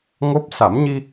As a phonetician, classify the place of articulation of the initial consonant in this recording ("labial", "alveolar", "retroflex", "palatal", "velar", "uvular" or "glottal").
velar